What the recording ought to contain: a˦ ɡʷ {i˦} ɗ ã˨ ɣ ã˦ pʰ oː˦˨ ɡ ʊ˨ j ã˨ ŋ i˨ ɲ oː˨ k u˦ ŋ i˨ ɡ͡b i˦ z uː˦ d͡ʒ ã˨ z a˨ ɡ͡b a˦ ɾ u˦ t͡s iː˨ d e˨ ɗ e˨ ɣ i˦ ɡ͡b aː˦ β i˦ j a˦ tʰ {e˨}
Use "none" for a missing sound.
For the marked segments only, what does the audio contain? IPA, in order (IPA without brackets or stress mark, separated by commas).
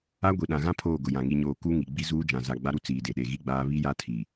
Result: i˨, i˨